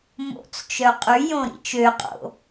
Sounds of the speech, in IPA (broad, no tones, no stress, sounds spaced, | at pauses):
m o̰ t͡s t͡ʃ œ qʼ y j õ ɾ ḭ t͡ʃ ø qʼ o̰